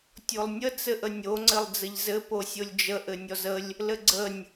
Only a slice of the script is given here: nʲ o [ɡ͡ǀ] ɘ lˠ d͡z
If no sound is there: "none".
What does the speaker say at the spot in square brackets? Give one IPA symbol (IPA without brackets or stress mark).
ŋ͡ǀ